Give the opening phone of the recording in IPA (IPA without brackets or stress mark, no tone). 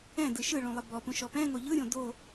ɛ̃